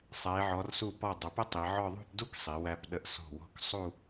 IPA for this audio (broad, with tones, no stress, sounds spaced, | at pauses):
sˤ æ˩˧ e̯ ʕ ɔ˩˧ r s u˧˩ p ɔ˧˩ dˤ ə˩˧ p ə˥ tˤ i˩˧ ʕ ɔ˥˧ ðˤ ṳ˥˧ p d u˥ k sˤ i˩˧ w æ˧ p ɗ ə˧ ʔ s ɔ̤˧˩ w ɔ̤˧ k sˤ u˥˧